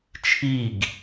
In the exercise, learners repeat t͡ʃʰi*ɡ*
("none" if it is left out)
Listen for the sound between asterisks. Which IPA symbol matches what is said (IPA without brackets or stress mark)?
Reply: ɡ